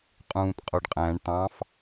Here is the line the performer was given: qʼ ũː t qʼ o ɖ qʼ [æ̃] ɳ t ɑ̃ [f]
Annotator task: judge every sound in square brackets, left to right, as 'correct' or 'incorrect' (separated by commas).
correct, correct